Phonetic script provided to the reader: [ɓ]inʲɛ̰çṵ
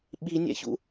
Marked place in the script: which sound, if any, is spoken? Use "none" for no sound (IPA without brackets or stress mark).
ɓ